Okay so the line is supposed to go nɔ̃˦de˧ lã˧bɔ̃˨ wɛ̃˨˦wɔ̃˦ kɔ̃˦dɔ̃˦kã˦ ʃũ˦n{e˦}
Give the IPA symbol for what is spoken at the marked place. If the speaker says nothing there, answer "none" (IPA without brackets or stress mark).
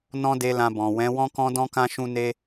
e˦